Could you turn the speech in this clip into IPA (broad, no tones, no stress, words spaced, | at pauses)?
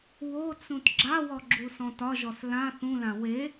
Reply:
wot͡sũt ɡ͡ǁawɔ ɡ͡ǁusɔ̃tɒʒɔs lã θũlã we